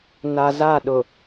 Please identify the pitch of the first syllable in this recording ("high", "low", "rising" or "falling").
low